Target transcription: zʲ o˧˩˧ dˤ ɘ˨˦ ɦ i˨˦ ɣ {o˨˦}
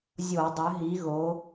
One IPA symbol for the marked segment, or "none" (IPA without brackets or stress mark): o˨˦